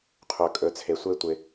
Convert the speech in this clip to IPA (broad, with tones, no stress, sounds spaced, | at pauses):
qʰ ɵ˨ kʼ ɵ˨ t͡sʰ e˨ sʷ e˦ tʷ ɪ˧